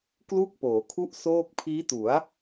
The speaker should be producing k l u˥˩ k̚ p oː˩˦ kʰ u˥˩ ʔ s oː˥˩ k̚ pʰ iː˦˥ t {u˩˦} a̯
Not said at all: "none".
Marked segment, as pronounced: u˩˦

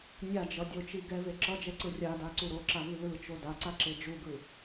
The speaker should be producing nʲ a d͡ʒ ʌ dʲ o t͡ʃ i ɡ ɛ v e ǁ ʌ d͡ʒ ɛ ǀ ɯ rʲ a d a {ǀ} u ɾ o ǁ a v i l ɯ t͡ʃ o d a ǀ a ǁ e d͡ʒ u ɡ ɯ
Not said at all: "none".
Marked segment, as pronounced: ǀ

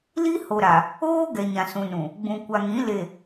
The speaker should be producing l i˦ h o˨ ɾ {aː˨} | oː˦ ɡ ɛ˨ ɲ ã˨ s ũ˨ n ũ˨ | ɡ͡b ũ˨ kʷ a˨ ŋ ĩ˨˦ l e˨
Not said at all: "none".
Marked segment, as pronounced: a˨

